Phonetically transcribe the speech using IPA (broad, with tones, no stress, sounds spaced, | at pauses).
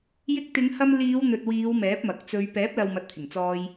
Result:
j ɪ˧ k̚ t̪ ɪ˨˧ ŋ h ɐ˧ m l iː˨˧ w n̪ ɵ˨ t̚ w iː˨˧ w m ɛː˨˥ p̚ m ɐ˨ k̚ t͡s ɵ˧ ɥ p ɛː˨˥ p̚ l ɐ˨ w m ɐ˨ t̚ t̪ʰ ɪ˨˩ ŋ t͡s ɔː˧ j